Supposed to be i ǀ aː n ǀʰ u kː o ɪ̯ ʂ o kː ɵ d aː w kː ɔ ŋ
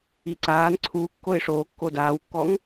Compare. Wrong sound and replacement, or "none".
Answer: ɵ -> o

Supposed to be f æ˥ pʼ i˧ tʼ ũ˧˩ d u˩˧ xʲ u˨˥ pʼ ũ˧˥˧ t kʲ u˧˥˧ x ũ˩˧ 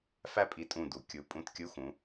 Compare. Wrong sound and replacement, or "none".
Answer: xʲ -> kʲ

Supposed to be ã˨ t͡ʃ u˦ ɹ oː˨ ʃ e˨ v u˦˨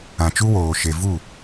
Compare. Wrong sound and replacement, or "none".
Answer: ɹ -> w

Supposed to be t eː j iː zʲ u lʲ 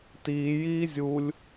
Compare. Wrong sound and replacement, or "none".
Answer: eː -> iː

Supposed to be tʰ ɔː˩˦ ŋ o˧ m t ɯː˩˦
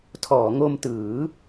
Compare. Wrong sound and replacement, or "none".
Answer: none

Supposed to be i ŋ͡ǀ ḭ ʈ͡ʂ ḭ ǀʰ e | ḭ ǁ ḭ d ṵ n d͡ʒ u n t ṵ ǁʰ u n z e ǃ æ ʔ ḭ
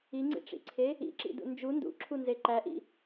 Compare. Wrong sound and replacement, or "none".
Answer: t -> d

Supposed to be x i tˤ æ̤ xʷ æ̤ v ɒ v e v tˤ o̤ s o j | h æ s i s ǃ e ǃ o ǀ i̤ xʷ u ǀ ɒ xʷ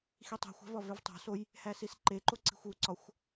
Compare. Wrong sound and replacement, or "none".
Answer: none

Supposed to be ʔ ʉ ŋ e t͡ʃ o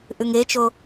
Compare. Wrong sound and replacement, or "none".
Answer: none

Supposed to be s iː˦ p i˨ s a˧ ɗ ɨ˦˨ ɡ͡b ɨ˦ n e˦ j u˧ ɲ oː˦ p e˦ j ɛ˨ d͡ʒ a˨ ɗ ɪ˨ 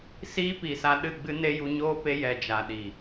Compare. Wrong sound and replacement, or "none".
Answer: ɪ˨ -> i˨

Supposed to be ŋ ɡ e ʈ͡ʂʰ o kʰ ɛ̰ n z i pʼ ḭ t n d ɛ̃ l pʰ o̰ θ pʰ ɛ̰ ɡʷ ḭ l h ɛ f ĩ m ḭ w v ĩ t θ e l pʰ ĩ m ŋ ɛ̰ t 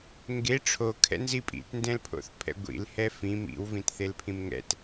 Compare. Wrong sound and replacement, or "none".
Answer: none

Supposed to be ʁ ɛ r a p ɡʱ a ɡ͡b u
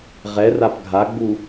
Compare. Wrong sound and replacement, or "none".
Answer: none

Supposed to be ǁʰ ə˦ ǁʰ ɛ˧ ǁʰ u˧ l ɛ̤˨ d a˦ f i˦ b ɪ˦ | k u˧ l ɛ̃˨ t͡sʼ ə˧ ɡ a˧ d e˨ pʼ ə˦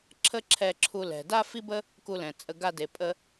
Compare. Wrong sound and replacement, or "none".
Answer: ɪ˦ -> ə˦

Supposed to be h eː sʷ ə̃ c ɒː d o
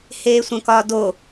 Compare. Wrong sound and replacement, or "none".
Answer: c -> k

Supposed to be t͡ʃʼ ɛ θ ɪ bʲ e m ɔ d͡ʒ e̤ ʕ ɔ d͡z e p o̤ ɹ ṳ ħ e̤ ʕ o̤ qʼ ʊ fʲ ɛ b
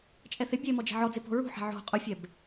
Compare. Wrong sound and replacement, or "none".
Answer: none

